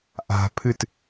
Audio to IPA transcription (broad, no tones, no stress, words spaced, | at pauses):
ʔa̤pʰɨt